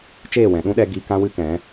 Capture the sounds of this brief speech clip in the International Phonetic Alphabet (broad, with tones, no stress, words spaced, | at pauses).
t͡ʃeː˦˨wɛ̃˨ɗũ˦ɗɛ˧ ɡi˧ kã˦wɨ˦kɛ̃˨˦